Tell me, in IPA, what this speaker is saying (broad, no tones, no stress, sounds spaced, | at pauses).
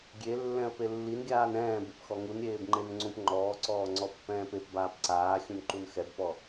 ɡʲ e lː ɛ̃ ə̯ p e lː i n ɡʲ aː n ɛ̃ː b e p x ɔ ŋ u n ɾʲ eː b ŋ͡ǃ e n ŋ͡ǀ ũ p ŋ͡ǃ ɔː ǀ ɔː ŋ͡ǀ ɔ pː ɛ̃ː p e p b aː p ǀ aː xʲ ũ n ǃ u n x ɛ b p ɔ